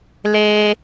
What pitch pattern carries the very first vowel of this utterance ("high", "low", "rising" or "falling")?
low